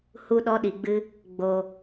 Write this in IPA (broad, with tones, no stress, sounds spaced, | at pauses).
h u˧ ɗ ɔ˧ ɗ i˨ ɡ͡b ɨ˧ | ɡ͡b o˨